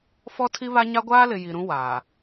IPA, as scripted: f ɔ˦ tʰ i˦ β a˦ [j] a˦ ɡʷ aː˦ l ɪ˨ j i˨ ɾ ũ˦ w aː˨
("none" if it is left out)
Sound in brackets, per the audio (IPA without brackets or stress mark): ɲ